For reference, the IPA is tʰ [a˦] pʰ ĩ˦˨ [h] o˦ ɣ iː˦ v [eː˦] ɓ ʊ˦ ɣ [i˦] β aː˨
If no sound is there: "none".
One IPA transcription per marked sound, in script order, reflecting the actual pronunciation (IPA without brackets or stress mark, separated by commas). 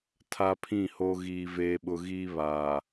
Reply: a˦, h, eː˦, iː˦